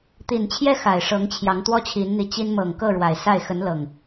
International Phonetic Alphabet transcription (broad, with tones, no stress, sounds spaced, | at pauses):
t̪ i˨˩ n t͡ɕʰ j ɛ˦ x a˨˩ ɪ̯ ʂ ɤ˨˦ ŋ t͡ɕʰ j ɑ˨˦ ŋ t̪ w ɔ˦ t͡ɕʰ i˨˦ n n̪ i˨˦ t͡ɕ i˦ n m ɤ˨˩ ŋ k ɤ˥˨ ɻ w a˨˩ ɪ̯ s a˥˨ ɪ̯ x ə˨˦ n l ɤ˨˩ ŋ